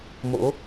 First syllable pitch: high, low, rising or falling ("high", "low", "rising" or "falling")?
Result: rising